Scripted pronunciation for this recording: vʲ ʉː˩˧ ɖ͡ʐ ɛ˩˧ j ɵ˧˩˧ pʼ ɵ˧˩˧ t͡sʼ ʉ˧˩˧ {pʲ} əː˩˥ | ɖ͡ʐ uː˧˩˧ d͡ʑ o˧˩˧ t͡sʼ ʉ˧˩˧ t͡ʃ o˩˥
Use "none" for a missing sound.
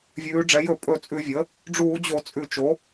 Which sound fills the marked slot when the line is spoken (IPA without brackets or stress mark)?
vʲ